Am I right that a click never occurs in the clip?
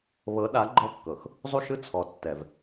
no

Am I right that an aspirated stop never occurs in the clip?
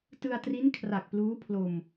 no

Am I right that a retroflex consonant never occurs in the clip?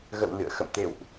yes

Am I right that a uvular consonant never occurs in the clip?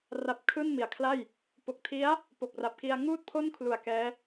yes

